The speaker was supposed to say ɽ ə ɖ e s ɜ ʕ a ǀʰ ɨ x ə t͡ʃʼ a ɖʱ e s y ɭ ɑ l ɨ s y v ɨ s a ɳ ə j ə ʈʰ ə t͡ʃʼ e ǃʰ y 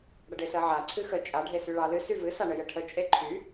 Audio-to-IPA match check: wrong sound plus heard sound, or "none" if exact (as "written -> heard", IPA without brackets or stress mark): none